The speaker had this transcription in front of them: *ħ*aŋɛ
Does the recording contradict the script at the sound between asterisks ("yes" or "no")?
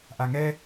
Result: yes